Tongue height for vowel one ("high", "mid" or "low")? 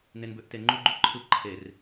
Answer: mid